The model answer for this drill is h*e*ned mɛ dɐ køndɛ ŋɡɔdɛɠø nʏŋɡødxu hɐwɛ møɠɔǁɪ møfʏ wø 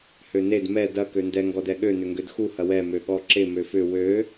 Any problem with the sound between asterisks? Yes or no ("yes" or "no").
yes